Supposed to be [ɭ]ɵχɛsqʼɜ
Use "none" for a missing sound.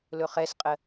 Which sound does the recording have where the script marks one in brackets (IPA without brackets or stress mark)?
l